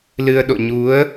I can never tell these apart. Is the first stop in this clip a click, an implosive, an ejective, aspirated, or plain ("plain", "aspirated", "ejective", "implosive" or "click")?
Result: implosive